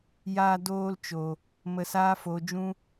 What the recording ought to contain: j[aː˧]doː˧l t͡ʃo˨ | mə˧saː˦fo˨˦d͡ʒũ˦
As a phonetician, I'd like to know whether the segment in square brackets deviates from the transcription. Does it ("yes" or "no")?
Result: no